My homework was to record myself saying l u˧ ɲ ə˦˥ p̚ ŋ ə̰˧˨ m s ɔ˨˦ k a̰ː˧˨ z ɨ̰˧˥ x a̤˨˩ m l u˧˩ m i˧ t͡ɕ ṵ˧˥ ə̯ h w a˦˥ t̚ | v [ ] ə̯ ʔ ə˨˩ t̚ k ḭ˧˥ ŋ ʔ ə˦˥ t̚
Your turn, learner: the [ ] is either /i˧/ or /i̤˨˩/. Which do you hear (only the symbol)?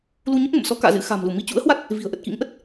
i̤˨˩